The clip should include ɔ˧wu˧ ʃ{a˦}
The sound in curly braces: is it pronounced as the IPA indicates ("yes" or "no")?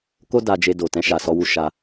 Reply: no